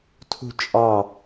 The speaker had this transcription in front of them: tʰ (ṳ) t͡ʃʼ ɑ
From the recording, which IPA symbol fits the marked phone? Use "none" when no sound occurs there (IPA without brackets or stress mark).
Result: ṳ